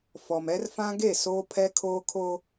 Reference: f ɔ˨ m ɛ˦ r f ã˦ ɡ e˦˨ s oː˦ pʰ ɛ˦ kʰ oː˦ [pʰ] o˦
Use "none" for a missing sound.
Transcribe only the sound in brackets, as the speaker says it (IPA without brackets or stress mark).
kʰ